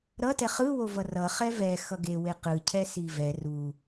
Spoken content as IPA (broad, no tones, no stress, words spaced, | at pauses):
ɾʌtɛ χɯwovʌ rʌ χɛvɛ xʌɡe weqɯcʰɛ sivɛ ru